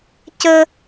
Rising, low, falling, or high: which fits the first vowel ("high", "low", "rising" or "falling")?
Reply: high